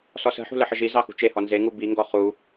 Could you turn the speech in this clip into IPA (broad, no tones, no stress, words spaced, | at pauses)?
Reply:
sɔsə̤ħṳ ləħəʒi zɑxṳt͡ʃehɔ nzeŋu biŋɡɔ χu